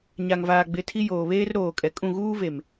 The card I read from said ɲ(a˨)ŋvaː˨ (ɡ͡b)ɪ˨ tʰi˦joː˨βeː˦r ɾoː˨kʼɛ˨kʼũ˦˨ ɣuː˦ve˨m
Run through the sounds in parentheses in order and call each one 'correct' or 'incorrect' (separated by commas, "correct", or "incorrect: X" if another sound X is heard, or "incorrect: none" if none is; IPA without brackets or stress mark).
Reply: correct, correct